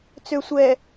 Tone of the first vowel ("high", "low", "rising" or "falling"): low